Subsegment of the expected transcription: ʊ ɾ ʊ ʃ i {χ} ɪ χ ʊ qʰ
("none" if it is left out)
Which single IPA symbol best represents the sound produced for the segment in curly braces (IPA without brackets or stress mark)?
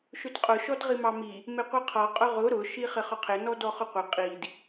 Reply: χ